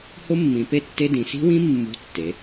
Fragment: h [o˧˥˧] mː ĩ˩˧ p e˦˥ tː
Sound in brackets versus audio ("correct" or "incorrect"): incorrect